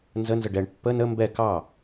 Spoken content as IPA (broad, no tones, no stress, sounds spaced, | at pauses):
n z ə n z ə ɖ ɛ ɳ pː ə n ə m b ɛ k ɑ